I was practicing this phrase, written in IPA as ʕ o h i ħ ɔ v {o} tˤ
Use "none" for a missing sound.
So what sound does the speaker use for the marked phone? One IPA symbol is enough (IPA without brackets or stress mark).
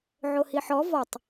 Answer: ɔ